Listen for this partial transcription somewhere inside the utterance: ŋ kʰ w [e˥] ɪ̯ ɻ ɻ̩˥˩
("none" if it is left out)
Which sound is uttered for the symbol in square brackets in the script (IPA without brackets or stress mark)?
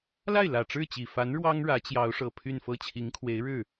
e˧˥